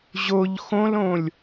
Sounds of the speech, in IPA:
ʑ o ʎ x õ l õ lʲ

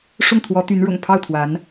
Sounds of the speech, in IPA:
ʂ ʊ˥˩ ŋ t̪ʰ w ɔ˧˥ t̪ y˧˥ n ɻ ʊ̰˨˩ ŋ pʰ ɑ˥˩ ʊ̯ t̪ʰ w a˧˥ n

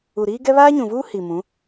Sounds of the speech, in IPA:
u˨ ɾ iː˦ ɡ ɛ˦ β aː˦ ɲ ũ˨ v uː˦ h i˨ m ũ˨˦

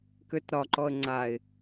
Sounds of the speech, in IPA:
k ø t ɾ ɒ ǃ ɔ ə̯ ŋ͡ǀ a ɪ̯

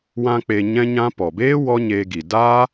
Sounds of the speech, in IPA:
w ã˧ k͡p e˧ ɲ ɛ̃˦ ɲ ã˦ p ɔ˨ b eː˦ w ɔ˦ ɲ eː˧ ɡ i˨ d aː˦

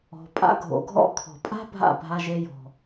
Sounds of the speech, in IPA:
ɔ̤˩ pʼ a̰˧ ɡʱ o̰˩ ɡʱ ɔ̰˧ kʰ ɔ̤˩ pʼ a̤˥ bʱ a̰˥˩ bʱ a˧ ʒ e˧ j ɔ̤˩

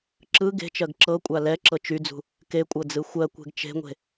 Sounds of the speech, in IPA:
ǁ ɯ ɡ e̤ t͡ʃ ɜ ɡ ǁ ɤ kʷʼ a l ɛ ǁ ɤ t͡ʃ y d͡z ṳ | k e kʷʼ ɤ d͡z ɯ xʷ ɜ kʷ e̤ ɡ t͡ʃ e̤ ŋʷ e̤

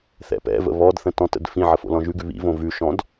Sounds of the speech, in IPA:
θ ɛ̰ p ɛ̰ v ə̰ β ɔ d θ ə̃ t ɔ̃ t ə̰ d f ĩ ʕ ə f o̰ l ɔ̃ ʒ ʉ ɡ ʉ β ḭ v õ v ʉ ʃ ɔ̃ d

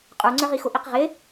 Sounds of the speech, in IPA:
qʼ ə˞ ŋ͡ǀ ə˞ ʁ i x ʊ ʔ i q ʁ ɪ

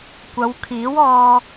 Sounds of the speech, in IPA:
kʷ ɐ˨˧ w kʰ iː˨˥ w ɔː˧

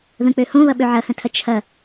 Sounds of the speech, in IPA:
ð ə̃ k͡p ø h õ β ɐ ɓ ø ʕ ɐ h ə̃ tʰ ɐ t͡ʃʰ ɐ

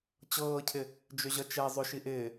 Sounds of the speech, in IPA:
t͡ɕ ɤː cʰ ɪ | d͡ʒ ʏ ʑ ʌ t͡ʃ ɛ zˤ ʏ ʃ i ʔ ɪː

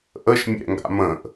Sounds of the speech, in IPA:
ʔ ə ʃ mʲ ɛ̰ ŋ ɡ a̰ m ə̃ ʔ

